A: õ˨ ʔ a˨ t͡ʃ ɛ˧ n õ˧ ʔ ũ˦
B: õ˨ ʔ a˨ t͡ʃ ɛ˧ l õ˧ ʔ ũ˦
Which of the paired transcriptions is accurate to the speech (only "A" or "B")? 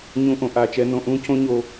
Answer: A